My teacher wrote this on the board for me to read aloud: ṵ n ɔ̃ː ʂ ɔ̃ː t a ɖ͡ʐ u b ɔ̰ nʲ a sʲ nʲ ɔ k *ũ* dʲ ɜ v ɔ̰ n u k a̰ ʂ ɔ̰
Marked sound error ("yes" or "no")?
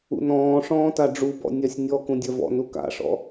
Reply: no